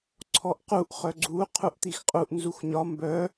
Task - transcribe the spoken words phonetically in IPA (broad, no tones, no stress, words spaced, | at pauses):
ǀʰɔʔquʔ χœɡ͡ǀu qʰuʔt̪ixqʼuʔ nzuxɲɒ mbœ